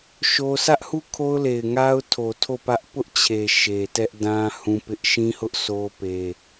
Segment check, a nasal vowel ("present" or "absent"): present